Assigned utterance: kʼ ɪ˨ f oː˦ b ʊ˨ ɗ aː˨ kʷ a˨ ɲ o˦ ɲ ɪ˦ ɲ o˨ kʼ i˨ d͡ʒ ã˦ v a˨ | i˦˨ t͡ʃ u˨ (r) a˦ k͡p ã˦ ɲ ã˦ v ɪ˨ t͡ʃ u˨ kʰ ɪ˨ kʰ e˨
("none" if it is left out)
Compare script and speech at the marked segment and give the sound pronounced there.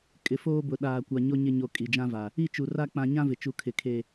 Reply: r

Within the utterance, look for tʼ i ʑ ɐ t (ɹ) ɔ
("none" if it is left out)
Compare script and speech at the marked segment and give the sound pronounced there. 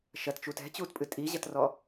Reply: r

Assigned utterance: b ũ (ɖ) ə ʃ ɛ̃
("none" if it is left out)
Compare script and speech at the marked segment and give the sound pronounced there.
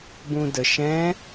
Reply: d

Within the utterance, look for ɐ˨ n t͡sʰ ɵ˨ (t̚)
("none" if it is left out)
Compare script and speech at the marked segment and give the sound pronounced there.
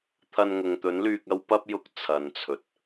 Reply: t̚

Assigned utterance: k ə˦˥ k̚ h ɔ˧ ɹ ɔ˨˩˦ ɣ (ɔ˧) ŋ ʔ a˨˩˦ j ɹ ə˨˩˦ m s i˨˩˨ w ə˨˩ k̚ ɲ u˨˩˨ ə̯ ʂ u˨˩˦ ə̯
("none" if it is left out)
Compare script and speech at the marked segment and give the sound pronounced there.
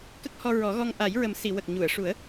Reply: ɔ˧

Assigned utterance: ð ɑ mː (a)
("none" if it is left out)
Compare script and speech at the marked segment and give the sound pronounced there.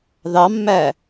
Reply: æ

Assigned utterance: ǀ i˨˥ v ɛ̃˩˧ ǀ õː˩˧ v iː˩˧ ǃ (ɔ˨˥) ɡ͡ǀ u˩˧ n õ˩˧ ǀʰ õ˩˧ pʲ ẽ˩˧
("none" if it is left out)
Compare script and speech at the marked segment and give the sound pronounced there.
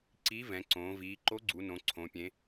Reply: o˨˥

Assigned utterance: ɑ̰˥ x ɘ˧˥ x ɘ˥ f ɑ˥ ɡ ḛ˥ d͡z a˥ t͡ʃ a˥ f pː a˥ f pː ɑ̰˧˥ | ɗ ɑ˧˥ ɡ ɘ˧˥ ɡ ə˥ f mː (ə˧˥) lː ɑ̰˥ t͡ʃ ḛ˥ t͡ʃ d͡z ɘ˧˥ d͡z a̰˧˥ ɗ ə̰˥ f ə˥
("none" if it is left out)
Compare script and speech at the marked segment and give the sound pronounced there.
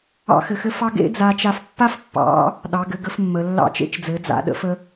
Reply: ə˧˥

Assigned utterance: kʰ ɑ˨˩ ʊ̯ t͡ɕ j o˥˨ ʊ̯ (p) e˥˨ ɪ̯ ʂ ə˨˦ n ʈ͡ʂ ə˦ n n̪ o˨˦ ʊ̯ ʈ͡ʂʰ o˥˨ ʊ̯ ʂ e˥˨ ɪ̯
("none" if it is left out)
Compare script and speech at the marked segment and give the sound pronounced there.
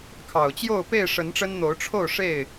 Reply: p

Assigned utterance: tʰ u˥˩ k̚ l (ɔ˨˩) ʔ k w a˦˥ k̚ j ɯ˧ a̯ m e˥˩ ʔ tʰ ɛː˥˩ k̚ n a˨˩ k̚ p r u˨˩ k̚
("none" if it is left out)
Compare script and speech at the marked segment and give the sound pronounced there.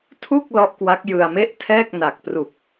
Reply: ɔ˦˥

